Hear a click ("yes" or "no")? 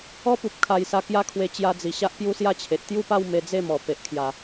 no